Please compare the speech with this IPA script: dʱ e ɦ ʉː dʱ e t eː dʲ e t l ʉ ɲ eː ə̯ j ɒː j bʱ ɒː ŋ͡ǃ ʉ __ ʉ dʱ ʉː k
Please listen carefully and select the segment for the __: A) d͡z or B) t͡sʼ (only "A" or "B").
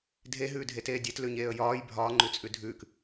B